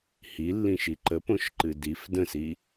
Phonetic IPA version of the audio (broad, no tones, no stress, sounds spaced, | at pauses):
h i lː ĩ ʃ i ǃ ə p õ ʃ ǃ ɨ d i f d ə̃ s i